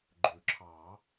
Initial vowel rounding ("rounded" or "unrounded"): rounded